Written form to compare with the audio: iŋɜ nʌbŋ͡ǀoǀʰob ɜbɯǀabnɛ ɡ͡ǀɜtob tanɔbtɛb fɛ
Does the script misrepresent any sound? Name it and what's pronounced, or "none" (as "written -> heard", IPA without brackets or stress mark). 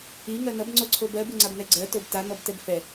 ǀ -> ŋ͡ǀ